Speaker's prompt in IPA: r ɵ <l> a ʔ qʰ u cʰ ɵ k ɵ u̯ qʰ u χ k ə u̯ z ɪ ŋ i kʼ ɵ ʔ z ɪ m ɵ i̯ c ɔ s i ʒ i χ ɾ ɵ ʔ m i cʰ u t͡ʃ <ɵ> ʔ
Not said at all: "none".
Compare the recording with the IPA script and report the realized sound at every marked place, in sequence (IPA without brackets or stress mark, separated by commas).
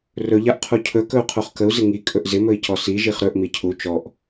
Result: ʎ, ɔ